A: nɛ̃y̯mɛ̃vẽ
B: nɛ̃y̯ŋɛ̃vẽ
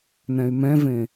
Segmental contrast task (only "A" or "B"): A